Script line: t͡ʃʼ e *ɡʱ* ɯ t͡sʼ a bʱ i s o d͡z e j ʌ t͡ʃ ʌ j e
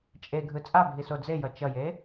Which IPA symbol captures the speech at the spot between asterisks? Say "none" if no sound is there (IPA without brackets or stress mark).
ɡʱ